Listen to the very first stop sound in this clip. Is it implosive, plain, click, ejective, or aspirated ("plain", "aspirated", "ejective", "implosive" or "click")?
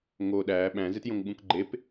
implosive